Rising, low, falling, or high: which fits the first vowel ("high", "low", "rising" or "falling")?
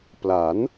rising